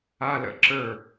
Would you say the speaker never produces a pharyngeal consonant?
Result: yes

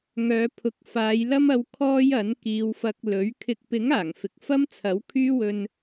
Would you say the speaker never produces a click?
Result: yes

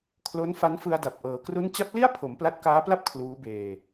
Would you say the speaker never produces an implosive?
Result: yes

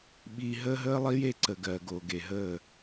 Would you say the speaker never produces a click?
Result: no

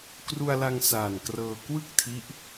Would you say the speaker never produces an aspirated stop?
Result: no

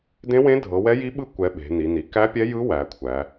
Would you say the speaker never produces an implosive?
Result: no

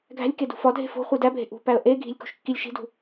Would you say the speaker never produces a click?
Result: yes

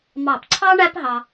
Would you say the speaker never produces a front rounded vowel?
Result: yes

